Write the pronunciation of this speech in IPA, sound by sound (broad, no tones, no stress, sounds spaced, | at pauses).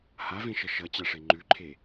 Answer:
h a v ẽ ʃ ʌ ʃ ʌ t͡ɕ a ʂ e ŋ͡ǃ ʉ ǃʰ e